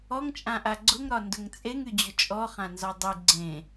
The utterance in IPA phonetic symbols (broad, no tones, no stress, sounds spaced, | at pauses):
ɔ ŋ t͡ʃʼ ã ʔ a ɡ͡ǀ ʊ ŋ ɾ ɒ n d ʊ ŋ t͡sʼ e ŋ y d͡ʑ ʊ t͡ʃʼ ɔ χ ã n z ɒ dˤ y ɡ͡ǀ ẽ